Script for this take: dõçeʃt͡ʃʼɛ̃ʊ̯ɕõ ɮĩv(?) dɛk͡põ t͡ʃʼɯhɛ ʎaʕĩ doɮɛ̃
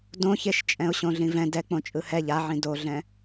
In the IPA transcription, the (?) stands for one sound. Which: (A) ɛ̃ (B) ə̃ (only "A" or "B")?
A